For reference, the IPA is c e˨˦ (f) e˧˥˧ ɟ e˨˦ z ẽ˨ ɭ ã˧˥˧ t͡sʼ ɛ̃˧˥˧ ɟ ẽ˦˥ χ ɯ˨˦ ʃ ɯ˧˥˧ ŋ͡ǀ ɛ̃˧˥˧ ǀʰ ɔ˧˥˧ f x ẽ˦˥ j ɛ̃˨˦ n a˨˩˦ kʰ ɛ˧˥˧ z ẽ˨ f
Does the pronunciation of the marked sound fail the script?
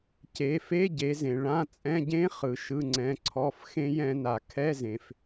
no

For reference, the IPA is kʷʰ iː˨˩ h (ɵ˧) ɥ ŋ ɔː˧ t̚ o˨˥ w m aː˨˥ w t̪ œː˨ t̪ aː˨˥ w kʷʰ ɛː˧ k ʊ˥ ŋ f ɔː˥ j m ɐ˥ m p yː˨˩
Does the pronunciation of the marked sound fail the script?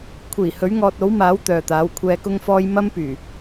yes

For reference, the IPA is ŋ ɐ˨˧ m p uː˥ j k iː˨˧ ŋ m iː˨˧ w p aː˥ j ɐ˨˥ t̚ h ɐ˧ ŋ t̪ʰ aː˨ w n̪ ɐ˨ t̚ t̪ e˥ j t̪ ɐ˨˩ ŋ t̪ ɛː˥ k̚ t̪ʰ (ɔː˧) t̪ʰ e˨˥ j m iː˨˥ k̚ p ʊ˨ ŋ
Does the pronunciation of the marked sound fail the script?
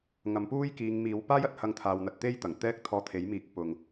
no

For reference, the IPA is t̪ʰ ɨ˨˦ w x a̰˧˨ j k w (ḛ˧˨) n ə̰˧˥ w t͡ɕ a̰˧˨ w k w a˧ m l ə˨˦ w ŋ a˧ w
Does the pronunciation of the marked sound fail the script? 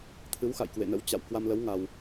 no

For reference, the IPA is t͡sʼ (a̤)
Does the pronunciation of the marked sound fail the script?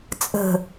yes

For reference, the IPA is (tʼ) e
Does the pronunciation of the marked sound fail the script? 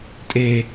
no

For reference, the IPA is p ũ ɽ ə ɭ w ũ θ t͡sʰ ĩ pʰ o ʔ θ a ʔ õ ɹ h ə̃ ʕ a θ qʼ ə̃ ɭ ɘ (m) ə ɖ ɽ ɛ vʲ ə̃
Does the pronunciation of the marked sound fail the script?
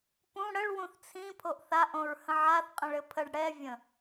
yes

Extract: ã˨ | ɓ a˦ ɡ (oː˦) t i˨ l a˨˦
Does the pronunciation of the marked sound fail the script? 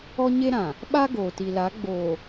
yes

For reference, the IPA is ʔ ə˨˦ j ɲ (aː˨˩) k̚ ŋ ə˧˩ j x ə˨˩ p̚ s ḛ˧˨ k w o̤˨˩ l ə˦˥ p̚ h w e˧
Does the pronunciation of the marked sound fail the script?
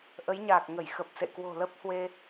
no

